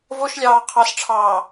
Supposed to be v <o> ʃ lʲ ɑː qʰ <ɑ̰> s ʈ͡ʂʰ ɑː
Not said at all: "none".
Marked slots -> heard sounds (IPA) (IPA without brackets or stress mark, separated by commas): o, ɑ